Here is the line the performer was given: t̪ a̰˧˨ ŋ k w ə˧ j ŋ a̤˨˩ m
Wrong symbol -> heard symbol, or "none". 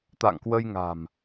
none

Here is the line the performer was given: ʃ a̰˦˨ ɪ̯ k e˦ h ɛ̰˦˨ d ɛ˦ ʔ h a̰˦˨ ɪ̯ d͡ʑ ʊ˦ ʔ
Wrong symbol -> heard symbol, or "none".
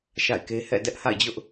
none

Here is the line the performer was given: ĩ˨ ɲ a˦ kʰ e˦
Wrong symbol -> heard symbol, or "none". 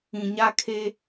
none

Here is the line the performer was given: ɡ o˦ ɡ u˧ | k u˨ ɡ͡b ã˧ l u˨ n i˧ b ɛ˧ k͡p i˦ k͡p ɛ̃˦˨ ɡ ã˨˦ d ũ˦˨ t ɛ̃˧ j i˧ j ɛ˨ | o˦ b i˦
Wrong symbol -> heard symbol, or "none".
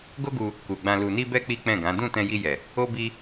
none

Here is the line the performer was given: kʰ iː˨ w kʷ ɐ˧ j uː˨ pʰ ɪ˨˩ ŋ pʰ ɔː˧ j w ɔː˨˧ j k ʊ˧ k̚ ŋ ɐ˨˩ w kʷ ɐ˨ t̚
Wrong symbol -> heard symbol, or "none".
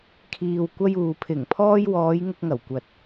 k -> ŋ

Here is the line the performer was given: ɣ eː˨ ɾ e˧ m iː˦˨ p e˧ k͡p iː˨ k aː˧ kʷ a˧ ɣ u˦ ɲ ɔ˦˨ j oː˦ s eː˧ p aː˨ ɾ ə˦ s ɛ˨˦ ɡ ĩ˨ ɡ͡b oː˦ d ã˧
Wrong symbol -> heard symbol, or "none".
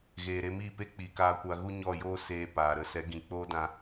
ɡ͡b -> k͡p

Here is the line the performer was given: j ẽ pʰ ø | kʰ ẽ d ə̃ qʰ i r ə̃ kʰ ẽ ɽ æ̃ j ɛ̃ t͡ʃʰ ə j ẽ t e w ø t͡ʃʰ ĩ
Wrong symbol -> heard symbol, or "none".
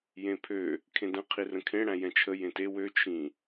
none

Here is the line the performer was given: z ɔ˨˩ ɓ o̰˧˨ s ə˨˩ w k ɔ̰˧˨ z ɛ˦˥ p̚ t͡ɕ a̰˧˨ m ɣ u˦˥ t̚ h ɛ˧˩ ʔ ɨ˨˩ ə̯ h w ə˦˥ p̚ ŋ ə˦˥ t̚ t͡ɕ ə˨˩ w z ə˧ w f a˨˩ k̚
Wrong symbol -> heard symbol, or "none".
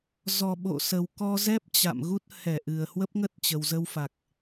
ɔ̰˧˨ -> ɔ˧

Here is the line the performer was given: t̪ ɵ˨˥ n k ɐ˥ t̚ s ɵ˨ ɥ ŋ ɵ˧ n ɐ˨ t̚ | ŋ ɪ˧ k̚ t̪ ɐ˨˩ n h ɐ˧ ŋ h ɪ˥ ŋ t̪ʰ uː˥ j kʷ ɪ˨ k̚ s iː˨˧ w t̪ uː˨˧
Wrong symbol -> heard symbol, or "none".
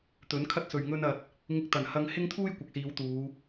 k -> kʰ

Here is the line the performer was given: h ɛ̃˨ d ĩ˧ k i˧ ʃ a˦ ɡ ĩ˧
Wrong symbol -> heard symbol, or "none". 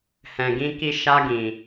d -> ɡ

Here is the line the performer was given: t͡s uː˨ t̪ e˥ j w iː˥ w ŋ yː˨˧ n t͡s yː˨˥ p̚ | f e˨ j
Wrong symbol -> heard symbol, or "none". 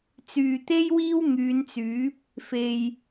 uː˨ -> yː˨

